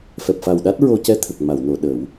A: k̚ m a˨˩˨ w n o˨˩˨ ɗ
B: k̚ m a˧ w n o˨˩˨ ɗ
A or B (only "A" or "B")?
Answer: A